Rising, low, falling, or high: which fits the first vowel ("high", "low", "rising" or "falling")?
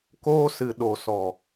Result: high